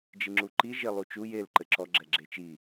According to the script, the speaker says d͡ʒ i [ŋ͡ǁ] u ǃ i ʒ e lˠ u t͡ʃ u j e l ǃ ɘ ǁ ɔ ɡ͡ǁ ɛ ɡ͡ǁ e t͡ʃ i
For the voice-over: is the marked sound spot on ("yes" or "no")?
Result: yes